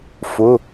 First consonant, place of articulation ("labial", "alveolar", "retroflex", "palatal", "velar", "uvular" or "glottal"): labial